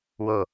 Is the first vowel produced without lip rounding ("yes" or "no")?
no